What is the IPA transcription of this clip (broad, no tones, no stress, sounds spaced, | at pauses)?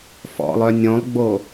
f ɔ̰ lˠ œ nʲ õ lˠ ɡ͡b o